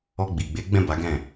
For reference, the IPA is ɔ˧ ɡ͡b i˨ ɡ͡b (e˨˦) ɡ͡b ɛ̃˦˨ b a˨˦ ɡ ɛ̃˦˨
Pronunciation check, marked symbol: correct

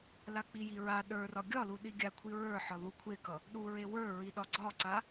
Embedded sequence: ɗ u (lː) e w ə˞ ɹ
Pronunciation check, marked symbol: incorrect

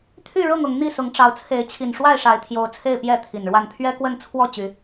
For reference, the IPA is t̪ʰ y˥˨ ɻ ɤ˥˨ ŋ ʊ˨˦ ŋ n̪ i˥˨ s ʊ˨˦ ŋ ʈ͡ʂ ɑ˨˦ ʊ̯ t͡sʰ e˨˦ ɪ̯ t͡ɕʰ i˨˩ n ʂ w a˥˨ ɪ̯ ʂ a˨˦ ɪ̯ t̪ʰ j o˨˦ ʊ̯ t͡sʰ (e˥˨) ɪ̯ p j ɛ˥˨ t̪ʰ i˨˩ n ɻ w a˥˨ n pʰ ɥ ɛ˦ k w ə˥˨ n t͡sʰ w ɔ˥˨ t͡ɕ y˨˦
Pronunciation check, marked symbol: correct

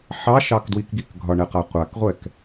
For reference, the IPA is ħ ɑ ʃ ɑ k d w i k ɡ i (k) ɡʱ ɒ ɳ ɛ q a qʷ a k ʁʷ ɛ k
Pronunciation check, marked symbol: correct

